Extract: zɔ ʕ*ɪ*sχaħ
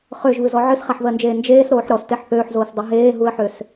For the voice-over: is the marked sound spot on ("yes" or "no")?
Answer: no